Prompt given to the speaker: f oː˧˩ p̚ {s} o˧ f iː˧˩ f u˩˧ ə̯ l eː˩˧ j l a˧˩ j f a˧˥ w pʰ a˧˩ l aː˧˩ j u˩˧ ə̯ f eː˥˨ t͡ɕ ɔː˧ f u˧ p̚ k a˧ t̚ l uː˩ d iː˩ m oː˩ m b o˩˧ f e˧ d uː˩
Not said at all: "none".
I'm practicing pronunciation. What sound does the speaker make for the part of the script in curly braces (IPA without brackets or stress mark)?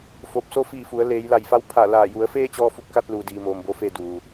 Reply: s